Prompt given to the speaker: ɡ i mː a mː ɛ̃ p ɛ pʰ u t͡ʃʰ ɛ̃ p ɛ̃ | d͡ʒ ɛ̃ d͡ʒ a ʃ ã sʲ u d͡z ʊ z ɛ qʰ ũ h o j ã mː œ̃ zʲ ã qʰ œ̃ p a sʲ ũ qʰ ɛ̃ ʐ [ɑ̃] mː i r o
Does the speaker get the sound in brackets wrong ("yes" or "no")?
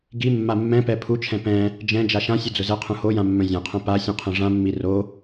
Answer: yes